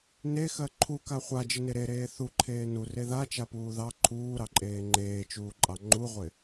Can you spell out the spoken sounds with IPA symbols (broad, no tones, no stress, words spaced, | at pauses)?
nexɜ ǃʰuka χʷad͡ʒɪne ɾeɾeː θuǃʰeː nure ðat͡ʃapuː ðɑ ǃʰuːɾɑǃʼeː ŋ͡ǃeːt͡ʃuːǃʼɑ ŋ͡ǃuʁʷɪ